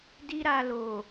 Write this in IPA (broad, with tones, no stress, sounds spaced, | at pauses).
d i˦ ɾ a˧ l o˨